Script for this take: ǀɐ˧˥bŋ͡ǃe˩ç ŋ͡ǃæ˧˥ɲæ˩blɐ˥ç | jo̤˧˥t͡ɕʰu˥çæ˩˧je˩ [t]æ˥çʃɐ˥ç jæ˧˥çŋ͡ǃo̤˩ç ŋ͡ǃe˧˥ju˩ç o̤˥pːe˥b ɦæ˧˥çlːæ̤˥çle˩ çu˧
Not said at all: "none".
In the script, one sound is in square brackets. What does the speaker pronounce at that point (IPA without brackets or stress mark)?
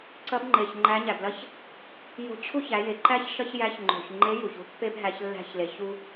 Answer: ǃ